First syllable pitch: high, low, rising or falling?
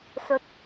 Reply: rising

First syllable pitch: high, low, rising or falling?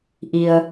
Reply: low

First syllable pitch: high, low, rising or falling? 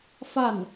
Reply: falling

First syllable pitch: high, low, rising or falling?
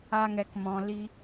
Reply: high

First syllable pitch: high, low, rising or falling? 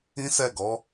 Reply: high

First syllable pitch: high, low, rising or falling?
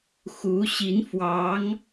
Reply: rising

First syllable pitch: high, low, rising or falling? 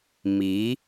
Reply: rising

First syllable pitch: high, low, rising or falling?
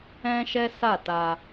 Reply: high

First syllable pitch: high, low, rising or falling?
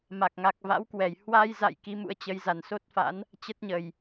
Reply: low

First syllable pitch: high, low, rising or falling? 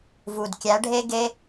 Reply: low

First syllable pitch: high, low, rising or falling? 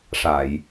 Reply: low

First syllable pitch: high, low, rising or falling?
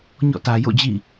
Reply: falling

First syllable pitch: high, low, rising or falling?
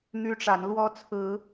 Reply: high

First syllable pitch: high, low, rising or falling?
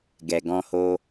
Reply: low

